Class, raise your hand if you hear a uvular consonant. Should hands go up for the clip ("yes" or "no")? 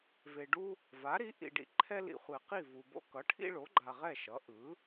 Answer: yes